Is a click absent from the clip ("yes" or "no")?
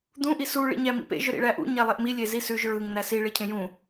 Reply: yes